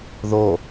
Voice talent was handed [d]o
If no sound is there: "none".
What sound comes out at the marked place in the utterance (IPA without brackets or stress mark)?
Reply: ð